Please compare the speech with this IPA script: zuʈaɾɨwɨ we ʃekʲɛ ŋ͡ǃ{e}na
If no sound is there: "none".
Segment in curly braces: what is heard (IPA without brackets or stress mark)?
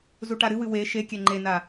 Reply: e